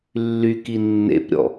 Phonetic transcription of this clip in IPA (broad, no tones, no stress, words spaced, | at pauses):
lːyki nːḛpɾʲɔ̰